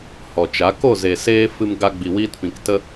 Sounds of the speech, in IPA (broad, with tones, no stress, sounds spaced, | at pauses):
h ɔ˨ t͡ʃ a˨˦ k o˦˨ z e˨ s eː˧ f ɨ˧ m ɡ a˧ ɡ͡b i˨ w iː˧ t p ĩ˨ k t ə˦